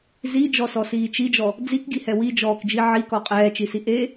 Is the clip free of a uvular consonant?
no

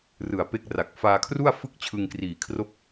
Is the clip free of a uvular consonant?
yes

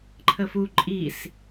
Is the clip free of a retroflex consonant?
yes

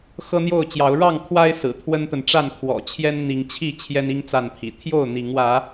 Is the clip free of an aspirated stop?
no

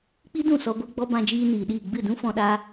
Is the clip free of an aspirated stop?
yes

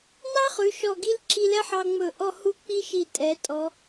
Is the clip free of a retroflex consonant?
yes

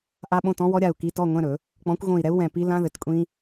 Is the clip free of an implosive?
no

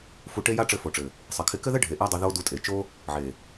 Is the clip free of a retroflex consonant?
no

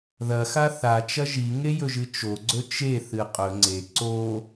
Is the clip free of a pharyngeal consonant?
yes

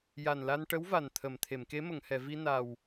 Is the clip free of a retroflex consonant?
no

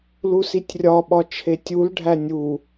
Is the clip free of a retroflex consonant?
no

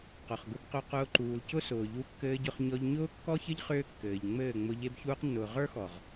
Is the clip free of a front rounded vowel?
no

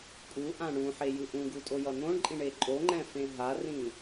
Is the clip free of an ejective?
no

